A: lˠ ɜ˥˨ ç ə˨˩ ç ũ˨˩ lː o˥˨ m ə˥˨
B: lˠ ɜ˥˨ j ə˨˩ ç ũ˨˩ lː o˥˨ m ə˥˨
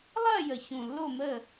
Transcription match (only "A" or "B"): B